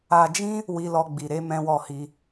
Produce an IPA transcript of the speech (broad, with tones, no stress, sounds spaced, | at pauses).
a˧ d͡ʒ ĩ˦ | w i˦ l ɔ˦ ɡ͡b i˧ ɾ e˦ m ɛ̃˦ w ɔ˦˨ h i˧